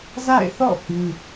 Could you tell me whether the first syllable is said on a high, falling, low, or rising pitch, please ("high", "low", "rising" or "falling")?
falling